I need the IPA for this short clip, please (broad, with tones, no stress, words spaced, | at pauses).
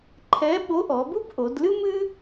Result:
ǃʰɛ˧˥ɓo˧˥ʔɔ˩˧bu˥b ʔo˩˧dlɨ˥mɨ˥